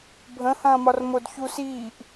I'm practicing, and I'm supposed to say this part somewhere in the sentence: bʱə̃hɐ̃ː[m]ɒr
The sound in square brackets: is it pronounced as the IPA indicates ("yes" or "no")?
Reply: yes